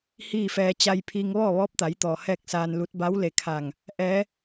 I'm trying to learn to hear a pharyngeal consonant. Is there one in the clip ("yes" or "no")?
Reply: no